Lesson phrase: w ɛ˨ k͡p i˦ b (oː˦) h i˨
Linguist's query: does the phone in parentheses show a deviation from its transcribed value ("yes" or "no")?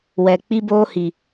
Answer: no